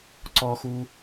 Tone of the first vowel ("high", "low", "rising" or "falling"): high